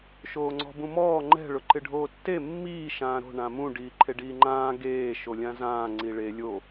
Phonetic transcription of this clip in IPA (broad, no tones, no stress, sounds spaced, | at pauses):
ʃ oː ŋ͡ǀ ɔ̤ b ũ m ɔː ŋ͡ǃ ɛ̤ ɭ ʊ ǃ ɪ ɖʱ oː tː e mː iː ʃ ãː ɾ o̤ ɳ ã m ũ ɖ iː ǃʰ e ɖ iː ŋ͡ǃ ãː ɡ eː ʃ o lʲ ã z ãː ŋ͡ǀ i ɭ e lʲ o